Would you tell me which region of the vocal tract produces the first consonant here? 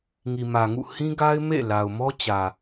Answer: velum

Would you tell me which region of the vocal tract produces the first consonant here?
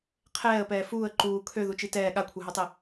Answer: uvula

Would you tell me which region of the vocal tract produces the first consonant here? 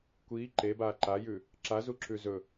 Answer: velum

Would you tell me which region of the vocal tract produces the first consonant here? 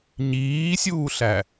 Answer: palate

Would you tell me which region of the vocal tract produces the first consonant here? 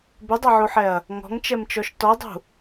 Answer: lips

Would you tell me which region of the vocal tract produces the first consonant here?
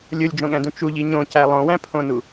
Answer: tongue tip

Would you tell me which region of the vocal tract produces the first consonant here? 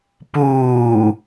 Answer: lips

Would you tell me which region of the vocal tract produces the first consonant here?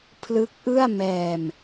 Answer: lips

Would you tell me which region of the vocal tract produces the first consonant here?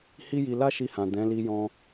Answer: throat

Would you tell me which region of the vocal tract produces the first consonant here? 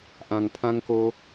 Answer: throat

